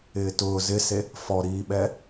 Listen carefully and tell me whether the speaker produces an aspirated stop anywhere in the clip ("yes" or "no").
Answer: no